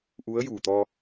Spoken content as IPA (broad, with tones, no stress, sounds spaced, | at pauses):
ʔ u˧˥ ə̯ j u˨˩ t̪ ɔ˧